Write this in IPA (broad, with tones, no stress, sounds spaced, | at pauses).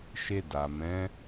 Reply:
ʃ e˧ d a˨ m ɛ̃˨˦